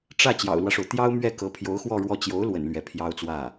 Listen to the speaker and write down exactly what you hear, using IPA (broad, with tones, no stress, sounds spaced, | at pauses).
ʈ͡ʂ ä˥˩ t͡ɕ j ɑ̰˨˩ ʊ̯ l w ä˦ ʂ o˩ ʊ̯ t̪ j ɑ˥ ʊ̯ m ɥ ɛ˥˩ k ɤ˧˥ pʰ j o˧˥ ʊ̯ x w ɔ˥˧ ɻ w ɔ˥˩ t͡ɕ j o˧˥ ʊ̯ l w ə̰˨˩ n l ɥ ɛ˧˥ pʰ j ɑ˥ ʊ̯ t͡s w ä˥˩